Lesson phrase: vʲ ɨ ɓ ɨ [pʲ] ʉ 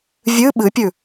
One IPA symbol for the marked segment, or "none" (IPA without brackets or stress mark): pʲ